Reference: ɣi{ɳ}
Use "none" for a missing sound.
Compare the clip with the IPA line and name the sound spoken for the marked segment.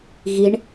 ɳ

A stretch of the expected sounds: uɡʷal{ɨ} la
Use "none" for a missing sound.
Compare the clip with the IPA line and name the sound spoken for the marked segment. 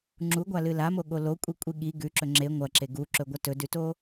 ɨ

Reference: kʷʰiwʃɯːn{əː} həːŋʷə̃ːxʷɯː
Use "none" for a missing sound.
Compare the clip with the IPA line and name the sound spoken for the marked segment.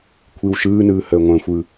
ɯː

